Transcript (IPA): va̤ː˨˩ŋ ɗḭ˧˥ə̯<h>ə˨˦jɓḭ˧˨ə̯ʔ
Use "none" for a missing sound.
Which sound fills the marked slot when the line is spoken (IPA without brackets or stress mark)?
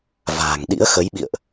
x